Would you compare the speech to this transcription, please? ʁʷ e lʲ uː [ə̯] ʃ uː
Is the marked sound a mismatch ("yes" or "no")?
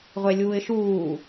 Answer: yes